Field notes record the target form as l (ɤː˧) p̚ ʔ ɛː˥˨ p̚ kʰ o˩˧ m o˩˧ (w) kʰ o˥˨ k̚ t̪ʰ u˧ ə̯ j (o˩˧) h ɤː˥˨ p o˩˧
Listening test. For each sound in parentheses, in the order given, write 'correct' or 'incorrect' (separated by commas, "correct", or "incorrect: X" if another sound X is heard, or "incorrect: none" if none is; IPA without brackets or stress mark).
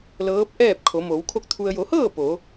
incorrect: ɤː˧˥, correct, correct